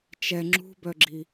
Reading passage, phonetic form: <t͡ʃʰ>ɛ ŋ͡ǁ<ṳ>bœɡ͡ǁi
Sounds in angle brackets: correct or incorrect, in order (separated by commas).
incorrect, correct